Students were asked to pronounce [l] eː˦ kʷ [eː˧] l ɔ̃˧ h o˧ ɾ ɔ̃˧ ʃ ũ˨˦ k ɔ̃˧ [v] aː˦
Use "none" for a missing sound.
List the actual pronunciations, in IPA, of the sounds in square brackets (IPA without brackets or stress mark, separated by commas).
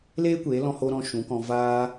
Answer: l, eː˨˦, v